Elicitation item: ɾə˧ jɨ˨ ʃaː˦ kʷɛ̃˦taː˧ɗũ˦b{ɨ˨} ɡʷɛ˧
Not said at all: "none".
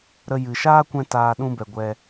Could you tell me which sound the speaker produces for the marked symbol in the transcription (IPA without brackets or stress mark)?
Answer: ɛ˨